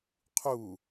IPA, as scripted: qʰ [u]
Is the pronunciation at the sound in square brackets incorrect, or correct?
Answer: correct